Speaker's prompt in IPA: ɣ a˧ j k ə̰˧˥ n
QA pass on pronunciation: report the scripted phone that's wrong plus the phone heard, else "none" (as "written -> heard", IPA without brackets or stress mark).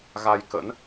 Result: none